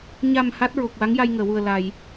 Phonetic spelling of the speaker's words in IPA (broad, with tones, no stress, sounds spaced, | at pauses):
ɲ a˨˩ m h a˦˥ t̚ ɹ o˨˩ k̚ w a˧˥ ŋ j a˧ j ŋ əː˨˩˨ w u˨˩ ə̯ l a˨˩˨ j